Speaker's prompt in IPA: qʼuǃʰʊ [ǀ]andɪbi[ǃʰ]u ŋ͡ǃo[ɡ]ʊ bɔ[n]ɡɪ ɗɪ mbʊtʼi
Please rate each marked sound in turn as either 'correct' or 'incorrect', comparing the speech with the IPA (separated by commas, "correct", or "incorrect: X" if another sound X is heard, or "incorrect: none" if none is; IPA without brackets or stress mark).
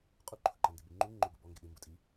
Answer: incorrect: ǃ, incorrect: ŋ͡ǃ, correct, incorrect: ŋ